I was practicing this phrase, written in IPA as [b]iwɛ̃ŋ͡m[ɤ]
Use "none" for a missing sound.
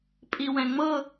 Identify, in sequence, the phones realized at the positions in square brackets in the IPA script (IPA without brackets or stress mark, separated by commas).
pʼ, ɤ